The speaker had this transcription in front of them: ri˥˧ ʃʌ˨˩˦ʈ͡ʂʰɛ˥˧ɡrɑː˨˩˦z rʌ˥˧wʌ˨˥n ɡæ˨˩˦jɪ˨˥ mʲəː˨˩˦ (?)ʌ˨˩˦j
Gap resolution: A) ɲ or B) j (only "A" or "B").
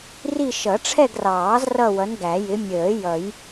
B